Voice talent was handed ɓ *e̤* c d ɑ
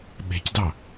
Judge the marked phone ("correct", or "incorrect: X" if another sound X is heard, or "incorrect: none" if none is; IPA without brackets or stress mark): correct